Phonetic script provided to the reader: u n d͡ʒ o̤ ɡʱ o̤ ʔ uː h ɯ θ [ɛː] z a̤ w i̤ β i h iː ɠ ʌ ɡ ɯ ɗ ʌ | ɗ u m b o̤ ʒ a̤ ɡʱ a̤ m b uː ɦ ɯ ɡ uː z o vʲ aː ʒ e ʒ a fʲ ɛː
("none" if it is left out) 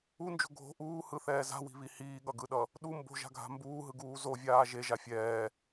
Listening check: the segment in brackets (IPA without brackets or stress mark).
ɛː